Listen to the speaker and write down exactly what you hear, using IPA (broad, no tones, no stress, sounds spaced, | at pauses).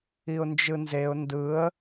i ʊ̯ n d͡ʒ ɯ n z e ʊ̯ n d ɯ ə̯